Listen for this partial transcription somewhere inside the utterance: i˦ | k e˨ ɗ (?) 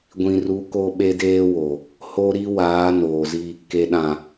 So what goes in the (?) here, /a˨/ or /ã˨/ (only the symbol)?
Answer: ã˨